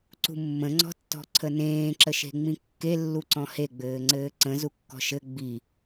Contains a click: yes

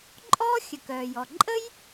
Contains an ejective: yes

